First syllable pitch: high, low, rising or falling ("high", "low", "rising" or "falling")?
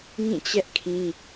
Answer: falling